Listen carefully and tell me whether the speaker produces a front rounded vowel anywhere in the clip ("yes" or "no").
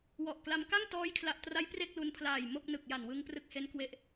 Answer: no